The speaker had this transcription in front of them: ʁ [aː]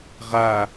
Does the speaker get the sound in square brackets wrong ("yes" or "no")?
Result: yes